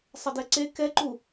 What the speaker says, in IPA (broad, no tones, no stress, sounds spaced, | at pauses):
sˤ ɐ d ɛ ǀ e k ɛ ǃ u